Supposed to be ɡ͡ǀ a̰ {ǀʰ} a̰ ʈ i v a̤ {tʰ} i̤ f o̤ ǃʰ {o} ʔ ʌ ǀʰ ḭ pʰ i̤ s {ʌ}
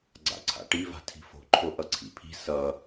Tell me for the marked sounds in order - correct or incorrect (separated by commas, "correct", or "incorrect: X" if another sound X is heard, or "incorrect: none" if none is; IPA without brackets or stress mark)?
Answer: correct, correct, correct, correct